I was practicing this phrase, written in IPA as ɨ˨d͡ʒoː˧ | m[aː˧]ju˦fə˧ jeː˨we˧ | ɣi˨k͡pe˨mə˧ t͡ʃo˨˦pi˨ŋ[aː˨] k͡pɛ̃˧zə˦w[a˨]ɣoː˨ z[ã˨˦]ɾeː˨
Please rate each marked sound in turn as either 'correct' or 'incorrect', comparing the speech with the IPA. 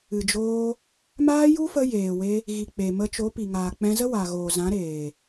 incorrect, correct, correct, correct

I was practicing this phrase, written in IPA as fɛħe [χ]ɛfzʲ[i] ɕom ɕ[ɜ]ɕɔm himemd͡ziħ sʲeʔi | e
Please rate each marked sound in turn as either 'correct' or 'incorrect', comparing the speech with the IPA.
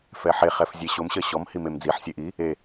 correct, incorrect, correct

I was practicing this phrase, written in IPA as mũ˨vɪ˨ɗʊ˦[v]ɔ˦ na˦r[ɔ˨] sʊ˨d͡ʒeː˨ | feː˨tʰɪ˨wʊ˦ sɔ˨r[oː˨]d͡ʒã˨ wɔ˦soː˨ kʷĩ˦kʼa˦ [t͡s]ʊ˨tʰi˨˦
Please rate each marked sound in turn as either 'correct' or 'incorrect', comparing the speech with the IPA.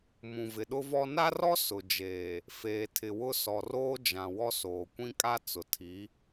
correct, incorrect, incorrect, correct

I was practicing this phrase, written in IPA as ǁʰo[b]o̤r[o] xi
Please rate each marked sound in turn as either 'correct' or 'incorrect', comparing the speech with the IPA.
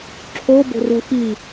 correct, incorrect

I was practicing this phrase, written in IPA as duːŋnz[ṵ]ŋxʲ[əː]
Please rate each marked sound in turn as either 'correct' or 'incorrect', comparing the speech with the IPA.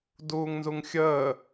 incorrect, correct

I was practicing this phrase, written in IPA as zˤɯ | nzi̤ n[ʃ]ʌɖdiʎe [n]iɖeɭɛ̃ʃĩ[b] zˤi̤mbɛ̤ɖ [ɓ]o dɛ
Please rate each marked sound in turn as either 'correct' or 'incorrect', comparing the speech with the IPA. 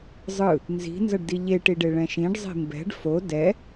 incorrect, incorrect, incorrect, incorrect

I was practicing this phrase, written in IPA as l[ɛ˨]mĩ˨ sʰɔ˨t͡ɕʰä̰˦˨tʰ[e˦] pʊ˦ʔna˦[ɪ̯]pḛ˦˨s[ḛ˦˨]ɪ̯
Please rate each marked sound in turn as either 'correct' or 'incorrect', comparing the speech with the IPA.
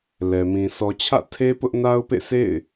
correct, correct, incorrect, correct

